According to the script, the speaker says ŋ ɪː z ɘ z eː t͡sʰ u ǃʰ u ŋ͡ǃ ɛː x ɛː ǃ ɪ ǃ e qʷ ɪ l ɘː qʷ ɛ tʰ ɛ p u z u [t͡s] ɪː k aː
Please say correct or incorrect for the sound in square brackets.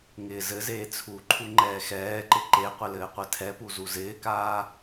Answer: incorrect